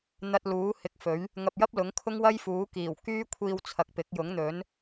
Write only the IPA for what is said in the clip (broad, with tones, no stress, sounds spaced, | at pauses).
n̪ ɐ˧ t̚ l uː˨˥ h ɪ˨˥ k̚ f ɵ˨˥ ɥ | ŋ ɐ˧ p̚ j ɐ˥ p̚ l ʊ˨˥ ŋ kʰ ʊ˥ ŋ w ɐ˥ j f uː˨˥ k iː˨˩ w k yː˥ kʷʰ iː˧ w t͡sʰ ɐ˨ k̚ p ɪ˨˥ k̚ j ʊ˨˥ ŋ n̪ ɵ˨˥ n